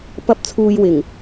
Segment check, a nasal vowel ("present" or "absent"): absent